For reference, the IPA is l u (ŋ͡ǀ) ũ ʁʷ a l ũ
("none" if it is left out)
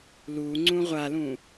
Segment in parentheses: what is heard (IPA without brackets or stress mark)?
ŋ͡ǀ